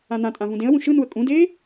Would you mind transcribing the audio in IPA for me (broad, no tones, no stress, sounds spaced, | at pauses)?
ã n̪ ã tʼ ã v ũ d ẽ ə̯ w ũ ʃ ɯ n u ə̯ kʼ ũ d eː